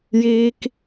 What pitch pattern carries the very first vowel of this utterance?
high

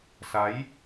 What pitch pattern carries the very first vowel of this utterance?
rising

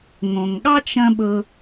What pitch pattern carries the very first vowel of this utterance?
low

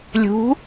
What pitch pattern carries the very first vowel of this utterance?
rising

